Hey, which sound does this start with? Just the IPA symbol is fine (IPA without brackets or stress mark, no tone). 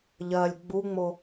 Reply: ʎ